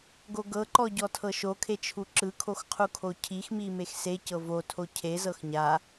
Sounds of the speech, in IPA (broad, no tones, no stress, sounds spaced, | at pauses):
ɡ o ɡ ɤ ǃ ɔ ɟ ɔ tʰ ɤ ʃ o kʰ e t͡ʃʰ u ǁ ɯ kʰ o x qʰ u kʰ o cʰ i x m i m e x s e c ɤ v o tʰ o cʰ e z ɤ x ɲ a